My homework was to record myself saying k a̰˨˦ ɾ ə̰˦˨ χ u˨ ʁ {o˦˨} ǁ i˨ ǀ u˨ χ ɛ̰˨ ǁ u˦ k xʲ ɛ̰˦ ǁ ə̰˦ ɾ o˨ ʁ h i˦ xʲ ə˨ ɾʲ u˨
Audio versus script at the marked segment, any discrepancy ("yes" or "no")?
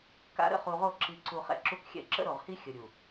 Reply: no